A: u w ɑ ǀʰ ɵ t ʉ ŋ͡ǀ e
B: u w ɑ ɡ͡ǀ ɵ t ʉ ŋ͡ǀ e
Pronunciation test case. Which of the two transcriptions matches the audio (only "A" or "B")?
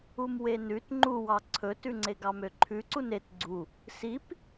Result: A